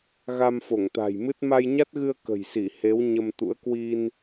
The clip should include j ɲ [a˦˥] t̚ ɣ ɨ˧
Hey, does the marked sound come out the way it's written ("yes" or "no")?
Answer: yes